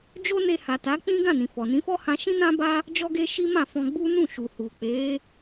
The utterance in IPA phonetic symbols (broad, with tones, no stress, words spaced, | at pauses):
d͡ʒo˦ne˧ ha˨ta˨˦k͡pĩ˦ ɡã˦˨nĩ˨ fɔ˨nĩ˨˦fɔ˦hã˧ ʃĩ˦nã˦ba˦ | d͡ʒɔ˦ɡe˦ʃi˦ mã˦˨fɔ̃˧ɡ͡bu˦ nũ˦˨ʃu˨hu˨ k͡pe˨˦